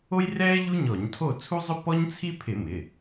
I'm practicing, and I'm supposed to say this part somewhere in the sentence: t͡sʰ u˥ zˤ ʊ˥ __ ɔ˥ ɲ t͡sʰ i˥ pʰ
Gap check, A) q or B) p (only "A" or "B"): B